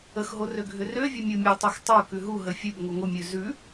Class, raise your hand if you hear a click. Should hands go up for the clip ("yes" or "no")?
no